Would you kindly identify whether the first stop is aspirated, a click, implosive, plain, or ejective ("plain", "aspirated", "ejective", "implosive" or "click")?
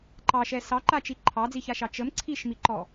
click